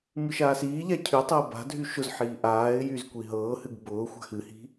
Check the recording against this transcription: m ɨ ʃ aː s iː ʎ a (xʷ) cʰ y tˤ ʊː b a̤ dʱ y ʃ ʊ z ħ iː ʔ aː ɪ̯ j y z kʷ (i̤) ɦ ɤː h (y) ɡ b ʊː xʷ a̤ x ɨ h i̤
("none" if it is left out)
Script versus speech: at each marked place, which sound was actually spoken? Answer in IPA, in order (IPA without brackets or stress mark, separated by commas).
none, i, ɨ